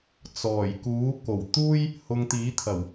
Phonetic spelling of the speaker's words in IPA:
t͡s ɔː˨˩ j k uː˨˥ k o˨˩ w t̪ uː˥ j | h ʊ˧ ŋ t̪ iː˨˥ t̪ʰ ɐ˨˩ w

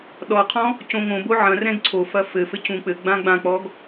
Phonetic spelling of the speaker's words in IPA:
ɗ ɔ qʰ ɔ̃ | c õ ŋ õ b o ʕ ɐ̃ r ɛ̃ ɡ ǀʰ o f ɐ f ɘ f ɘ c ũ k͡p ɘ ɡ͡b ã ɡ͡b ã k͡p ɔ ɡ

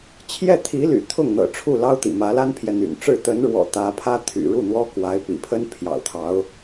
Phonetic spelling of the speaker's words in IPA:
t͡ɕʰ j ɛ˥˩ t̪ʰ i˧˥ l y̰˨˩ t̪ʰ ʊ˥˩ ŋ n̪ ɤ̰˨˩ ʈ͡ʂʰ u˥˩ l ɑ˥ ʊ̯ t̪ ḭ˨˩ m ä˧˥ l a˥ n pʰ j ɛ˨ n̪ y̰˨˩ n ʈ͡ʂ ɻ̩˥˩ t̪ ə˧˥ n ɻ w ɔ̰˨˩ t̪ ä˧˥ pʰ ä˥ t̪ʰ y̰˨˩ ɻ u˥˩ n̪ w ɔ˥ k w a˧˥ ɪ̯ p ḭ˨˩ pʰ ə˥ n pʰ j ɑ̰˨˩ ʊ̯ t̪ʰ ɑ˧˥ ʊ̯

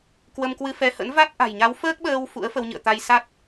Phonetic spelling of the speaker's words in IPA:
k w ə˧ m k w ɨ˧ f ɛ˧ h ə̰˧˥ n v a˦˥ t̚ ʔ a̤˨˩ j ɲ a˨˦ w f əː˦˥ k̚ ɓ əː˧ w f ṵ˧˥ ə̯ f ə˧ w ɲ ɨ̰˧˨ ə̯ t̪ a˧ j s a˦˥ t̚

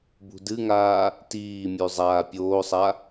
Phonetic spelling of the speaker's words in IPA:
b ṳ d ɨ ŋ aː | t iː mʲ ʉ zˤ aː pʲ oː sˤ a

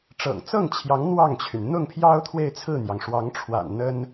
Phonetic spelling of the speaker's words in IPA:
ʈ͡ʂ ɤ̰˨˩ ŋ t͡s ɤ˥˩ ŋ t͡ɕʰ j ɑ˧˥ ŋ n̪ w ɑ˥˩ ŋ t͡ɕʰ y˩ n n̪ ʊ˥˩ ŋ pʰ j ɑ˥ ʊ̯ t̪ʰ w e˥˧ ɪ̯ t͡sʰ ɹ̩˥˩ n̪ j ɑ˩ ŋ ʂ w ɑ˧˥ ŋ ʈ͡ʂʰ w a̰˨˩ n n̪ ə˥ n

